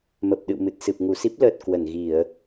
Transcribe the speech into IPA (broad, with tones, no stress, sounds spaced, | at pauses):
m ə˨˩ p̚ ɗ ɨ̰˧˨ w m ɨ˨˩ t̚ s ɨ˨˩ p̚ ŋ u˧˩ s i˦˥ p̚ l əː˨˩ t̚ k w ə˧˩ n ɣ i˧˩˨ ə̯